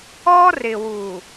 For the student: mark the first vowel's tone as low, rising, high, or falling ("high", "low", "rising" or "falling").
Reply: high